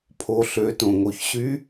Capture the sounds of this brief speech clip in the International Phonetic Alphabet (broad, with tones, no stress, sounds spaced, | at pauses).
pʰ o˩˧ ɬ ø˩˧ t õ˩ ŋ o˩ ç ɕ y˧˥